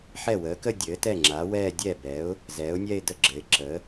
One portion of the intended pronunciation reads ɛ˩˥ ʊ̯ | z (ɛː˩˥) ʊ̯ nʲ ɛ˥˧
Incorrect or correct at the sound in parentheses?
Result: correct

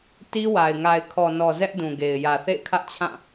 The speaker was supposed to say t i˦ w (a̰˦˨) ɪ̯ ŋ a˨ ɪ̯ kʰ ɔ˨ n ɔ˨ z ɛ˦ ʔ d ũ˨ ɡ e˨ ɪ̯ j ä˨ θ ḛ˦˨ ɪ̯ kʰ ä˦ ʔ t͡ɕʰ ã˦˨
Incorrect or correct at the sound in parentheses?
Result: incorrect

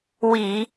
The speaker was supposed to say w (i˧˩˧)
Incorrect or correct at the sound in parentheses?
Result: correct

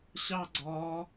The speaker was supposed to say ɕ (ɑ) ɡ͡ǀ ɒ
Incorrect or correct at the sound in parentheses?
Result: correct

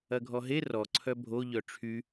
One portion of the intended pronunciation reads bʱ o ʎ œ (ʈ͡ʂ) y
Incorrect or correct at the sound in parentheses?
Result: incorrect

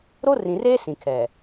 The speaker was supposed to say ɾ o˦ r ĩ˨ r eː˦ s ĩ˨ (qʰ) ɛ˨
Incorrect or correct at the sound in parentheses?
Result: incorrect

